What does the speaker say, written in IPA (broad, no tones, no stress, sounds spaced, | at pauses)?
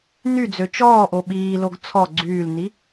n y d͡z ø t͡ʃ ɔː ʔ o ɓ iː l o ɡ t͡sʰ ɔ ɡ͡ǀ yː l n i